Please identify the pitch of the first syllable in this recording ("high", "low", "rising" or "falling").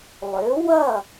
rising